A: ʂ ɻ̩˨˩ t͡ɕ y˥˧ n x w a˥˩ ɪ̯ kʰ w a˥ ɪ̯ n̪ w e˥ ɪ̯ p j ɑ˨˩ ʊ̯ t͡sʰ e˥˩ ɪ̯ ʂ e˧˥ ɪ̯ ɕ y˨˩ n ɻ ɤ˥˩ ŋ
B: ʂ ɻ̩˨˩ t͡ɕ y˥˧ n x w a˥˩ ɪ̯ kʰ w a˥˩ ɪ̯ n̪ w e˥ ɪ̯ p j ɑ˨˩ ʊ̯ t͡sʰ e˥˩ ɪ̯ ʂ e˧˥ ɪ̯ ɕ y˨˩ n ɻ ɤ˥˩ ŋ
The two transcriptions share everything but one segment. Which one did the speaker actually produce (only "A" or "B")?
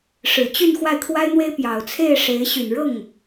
A